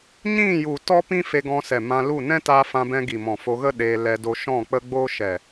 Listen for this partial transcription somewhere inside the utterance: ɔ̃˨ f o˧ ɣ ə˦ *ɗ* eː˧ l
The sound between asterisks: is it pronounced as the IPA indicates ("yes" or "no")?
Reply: yes